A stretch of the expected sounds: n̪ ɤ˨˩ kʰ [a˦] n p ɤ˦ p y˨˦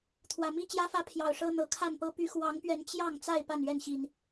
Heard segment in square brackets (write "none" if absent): a˥˨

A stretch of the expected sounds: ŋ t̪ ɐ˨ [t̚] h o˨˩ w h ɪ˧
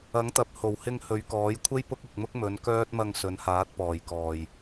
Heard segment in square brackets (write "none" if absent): p̚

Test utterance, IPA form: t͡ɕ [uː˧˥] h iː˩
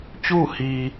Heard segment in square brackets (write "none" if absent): uː˥˨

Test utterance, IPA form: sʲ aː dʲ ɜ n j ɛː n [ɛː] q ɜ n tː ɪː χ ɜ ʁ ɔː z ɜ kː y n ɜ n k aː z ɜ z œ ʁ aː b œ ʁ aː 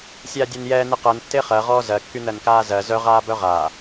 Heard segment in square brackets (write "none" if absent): ɛ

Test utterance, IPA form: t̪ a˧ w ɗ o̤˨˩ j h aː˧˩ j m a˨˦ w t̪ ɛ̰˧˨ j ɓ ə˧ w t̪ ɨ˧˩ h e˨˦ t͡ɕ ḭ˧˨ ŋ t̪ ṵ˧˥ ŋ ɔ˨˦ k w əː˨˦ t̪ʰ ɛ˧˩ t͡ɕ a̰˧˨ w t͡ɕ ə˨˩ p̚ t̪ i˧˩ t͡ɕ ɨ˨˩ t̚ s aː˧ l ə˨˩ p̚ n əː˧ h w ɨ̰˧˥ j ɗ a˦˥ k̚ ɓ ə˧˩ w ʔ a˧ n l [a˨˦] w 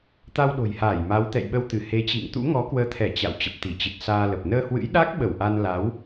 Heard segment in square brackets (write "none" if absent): a˨˦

